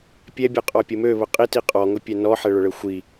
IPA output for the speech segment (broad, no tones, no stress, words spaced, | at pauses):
pʲɛbʲɘqʼɔpʲʊ møβʊ qʼiti qʼɔŋʊpʲɛ nɔħɛɭʊɭɘ xʷi